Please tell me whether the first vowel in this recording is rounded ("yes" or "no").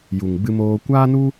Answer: yes